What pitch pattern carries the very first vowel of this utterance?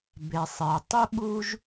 low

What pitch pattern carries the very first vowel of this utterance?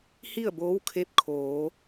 falling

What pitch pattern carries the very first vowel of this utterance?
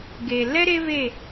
low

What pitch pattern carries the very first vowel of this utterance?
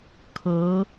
rising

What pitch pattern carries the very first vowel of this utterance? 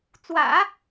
low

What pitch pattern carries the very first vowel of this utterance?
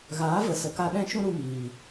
rising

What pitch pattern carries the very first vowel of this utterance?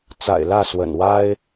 low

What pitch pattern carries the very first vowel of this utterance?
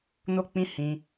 high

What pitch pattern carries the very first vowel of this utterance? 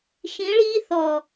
rising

